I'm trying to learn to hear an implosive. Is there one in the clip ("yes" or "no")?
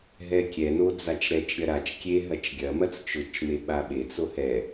yes